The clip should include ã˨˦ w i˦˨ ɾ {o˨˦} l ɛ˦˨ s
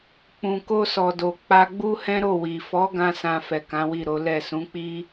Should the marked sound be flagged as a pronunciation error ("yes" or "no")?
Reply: no